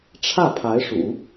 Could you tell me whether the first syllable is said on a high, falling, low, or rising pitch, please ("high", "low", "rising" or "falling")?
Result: falling